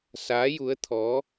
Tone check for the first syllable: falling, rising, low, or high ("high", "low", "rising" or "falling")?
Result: rising